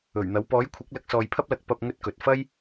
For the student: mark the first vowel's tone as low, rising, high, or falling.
low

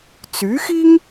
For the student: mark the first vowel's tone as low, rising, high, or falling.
rising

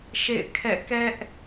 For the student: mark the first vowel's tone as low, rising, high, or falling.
falling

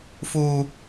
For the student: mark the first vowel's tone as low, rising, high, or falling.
high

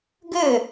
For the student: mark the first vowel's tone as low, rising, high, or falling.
falling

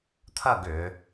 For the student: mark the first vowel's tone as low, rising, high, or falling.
falling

